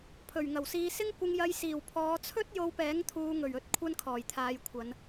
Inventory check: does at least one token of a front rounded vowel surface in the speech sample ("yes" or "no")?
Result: no